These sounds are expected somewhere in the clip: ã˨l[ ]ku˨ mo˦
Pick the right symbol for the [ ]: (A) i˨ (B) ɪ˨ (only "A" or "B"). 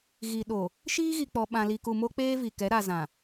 A